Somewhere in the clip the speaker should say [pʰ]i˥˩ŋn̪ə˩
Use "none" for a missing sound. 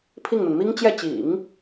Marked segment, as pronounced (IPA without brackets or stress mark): pʰ